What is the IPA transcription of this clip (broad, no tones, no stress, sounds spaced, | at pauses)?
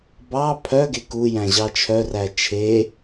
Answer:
b ɑ pʰ œ ɡ e k u j æ̃ ʑ ɑ t͡ʃʰ œ r æ t͡ʃʰ e